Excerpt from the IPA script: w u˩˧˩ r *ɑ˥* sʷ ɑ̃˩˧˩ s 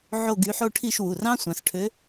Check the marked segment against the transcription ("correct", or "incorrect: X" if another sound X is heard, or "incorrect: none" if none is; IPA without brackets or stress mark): incorrect: ɑ̃˥